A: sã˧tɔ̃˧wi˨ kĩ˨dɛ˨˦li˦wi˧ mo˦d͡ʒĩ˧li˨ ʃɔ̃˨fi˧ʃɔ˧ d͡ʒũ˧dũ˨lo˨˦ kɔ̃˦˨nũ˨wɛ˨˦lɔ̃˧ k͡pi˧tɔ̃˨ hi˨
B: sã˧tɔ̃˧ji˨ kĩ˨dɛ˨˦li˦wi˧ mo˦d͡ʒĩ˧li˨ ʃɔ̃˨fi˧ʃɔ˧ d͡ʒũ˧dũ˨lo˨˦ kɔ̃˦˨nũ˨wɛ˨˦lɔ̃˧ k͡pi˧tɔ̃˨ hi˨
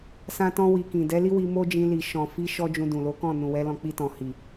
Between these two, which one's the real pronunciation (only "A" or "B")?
A